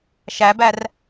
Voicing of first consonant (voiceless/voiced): voiceless